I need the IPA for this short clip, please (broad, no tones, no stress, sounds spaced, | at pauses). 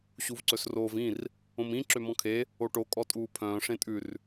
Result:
ɕ u v ǀ ɵ s r oː v ĩ r | õ m ĩ ǁ ø m ɔ̃ kʰ e | o ʈ o kʼ ɔ tʼ uː pʰ œ̃ː ʂ ẽ tʼ ʉ r